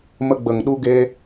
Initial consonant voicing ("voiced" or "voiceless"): voiced